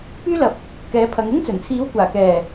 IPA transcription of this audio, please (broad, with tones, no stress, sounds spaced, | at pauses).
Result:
p yː˥ l ɐ˨˥ p̚ | k ɛː˨˥ pʰ ɐ˨˧ ŋ ʊ˥ ŋ t͡s ɵ˨˩ n t͡sʰ iː˨˥ w kʷ aː˨˩ k ɛː˨˩